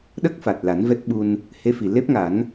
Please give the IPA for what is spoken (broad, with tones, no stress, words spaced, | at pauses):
ɗə˦˥k̚fa˨˩t̚la˨˩˦n vɛ˦˥t̚ɓu˧n | he˧˥fi˨˩le˦˥p̚ŋa˨˩˦n